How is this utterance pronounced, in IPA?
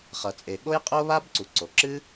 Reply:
χ ʌ˩ t͡sʼ e˩ ɠ o˥ j qʼ o˥ β a˥ b ǀ u˩ ǀ o˩ ǁ ɨ˥

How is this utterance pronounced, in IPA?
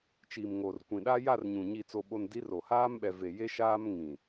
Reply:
t͡ʃ iː˨ m ŋ oː˨ r kʷ ĩ˨ ɗ a˦ j a˦˨ r ɲ ũ˨ ɲ iː˨ t͡s o˨ ɓ o˨ n d i˨˦ r o˨ h aː˦ m ɓ ɛ˨ v e˨ j e˦ ʃ aː˦ m ŋ ĩ˨

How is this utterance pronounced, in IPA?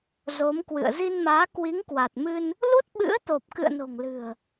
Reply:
z o˨˦ m k w ɨ̰˧˨ ə̯ z i˧ n m aː˨˦ k w i˨˦ ŋ k w a˨˩ t̚ m ɨ˧ n | l u˦˥ t̚ ɓ ɨ̰˧˥ ə̯ t̪ o˨˩ p̚ k ɨ̰˧˨ ə̯ n o̤˨˩ ŋ l ɨ̤˨˩ ə̯

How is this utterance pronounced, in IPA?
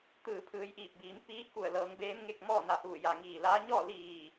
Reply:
t̪ ɯː˧˩ pʰ ɯː˩˧ j ʔ iː˧˩ p̚ b iː˩˧ m p iː˧˥ k u˧˩ ə̯ l ɤː˩˧ ŋ b eː˧˥ m ŋ e˥˨ k̚ m ɔː˥˨ n a˧˩ h uː˧˩ j a˧˩ ŋ iː˧˩ l a˧˥ ɲ ɔː˥˨ l iː˧˩

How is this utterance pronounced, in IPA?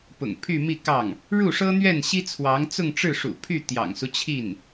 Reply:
p ʊ̰˨˩ ŋ pʰ y˥˧ m i˥˧ k ɑ˥˩ ŋ | ɻ u˥˩ ʂ ɤ˥ n̪ ɥ ɛ˥˩ n ɕ i˥ t͡sʰ w ɑ˧˥ ŋ t͡s ʊ˥˧ ŋ ʈ͡ʂ ɻ̩˥˩ ʂ ṵ˨˩ pʰ y˥˩ t̪ j ɑ̰˨˩ ŋ s u˦ t͡ɕʰ i˥˩ n

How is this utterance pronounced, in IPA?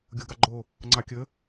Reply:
ɡʲ o ɡ ɑ ɡ͡ǃ o | ŋ͡ǀ ɑ kʲ ə

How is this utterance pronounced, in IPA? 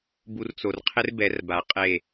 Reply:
b u˧ r t͡s o˨ r qʰ ɪ˦ r b ɛ˨˦ r b a˨ qʼ e˦˨

